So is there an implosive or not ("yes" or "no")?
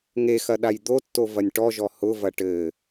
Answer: yes